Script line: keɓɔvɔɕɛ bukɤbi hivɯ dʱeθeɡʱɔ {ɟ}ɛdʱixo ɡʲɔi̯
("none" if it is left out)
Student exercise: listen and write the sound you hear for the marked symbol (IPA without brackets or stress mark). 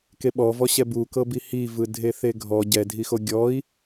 ɟ